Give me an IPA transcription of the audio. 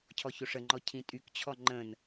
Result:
cʰ ɔ ç o ʂ ə ŋ͡ǃ ɔ cʰ ĩ tʼ y k t͡ɕʰ ɔ ŋ͡ǃ ə̃ n

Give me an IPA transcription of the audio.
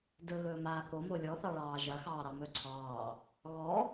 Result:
d ɵ ɣ ɵː m aː k o m o lʲ ɔ θ ɑ ɭ ɑː ʒ ɐ x ɑː ɾ ɑ m ɵ ǀʰ ɑː | ɣ ɔ

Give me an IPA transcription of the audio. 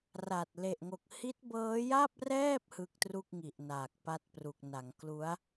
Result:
r a˨˩ t̚ l e˨˩ ʔ ŋ o˨˩ k̚ h i˦˥ t̚ b ɤː˦˥ j a˥˩ p̚ r ɛː˥˩ p̚ h ɯ˦˥ k̚ t r u˥˩ k̚ ŋ i˨˩ ʔ n aː˨˩ k̚ p a˦˥ t̚ p r u˨˩ k̚ n a˩˦ ŋ k l u˦˥ a̯

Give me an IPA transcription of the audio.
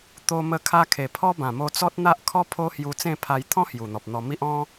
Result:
t̪ o˧ m ə˧ kʰ a˧ kʰ e˨˩ pʰ ɔ˦ b ã˨˩ m o˧ t͡s ɔ˦ t̚ n̪ a˦ ʔ kʰ ɔ˦ pʰ o˦ h j u˧ t͡s ẽ˥˧ pʰ a˧ j t̪ʰ ɔ̃˦ h j u˨˩ n̪ ɔ˨ p̚ n̪ ɔ˧ m i˦ ʔ ɔ̃˦

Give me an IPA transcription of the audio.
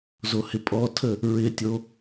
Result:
z o h ɪ pʼ ɔ tʰ ə | ɹ ɪ tʲ o

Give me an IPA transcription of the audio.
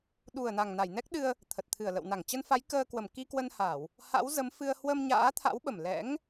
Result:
ɗ u˨˩ ə̯ n a˨˩ ŋ n a˧˩ j n ɛ˦˥ k̚ ɗ ɨ˧ ə̯ | t̪ʰ ə˨˩ t̚ t̪ʰ ɨ˧˩ ə̯ l ə̰˧˨ w n a˧˩ ŋ t͡ɕ ə˧ n f a˨˦ j k əː˧ k w ə˧˩ m k i˧ k w ə˧ n h a˧˩˨ w | h a̰˧˥ w z ə˨˦ m f ɨ˧ ə̯ h w ə˧ m ɲ a̰ː˧˥ t̪ʰ a̰˧˥ w ɓ ə˨˩ m l ɛ̰˧˥ ŋ

